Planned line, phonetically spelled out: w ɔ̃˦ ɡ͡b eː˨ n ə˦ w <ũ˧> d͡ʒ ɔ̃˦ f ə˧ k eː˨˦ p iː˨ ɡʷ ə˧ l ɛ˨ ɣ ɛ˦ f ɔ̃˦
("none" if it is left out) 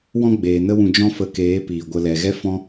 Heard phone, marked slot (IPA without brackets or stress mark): ũ˧